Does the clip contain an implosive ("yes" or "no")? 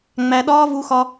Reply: yes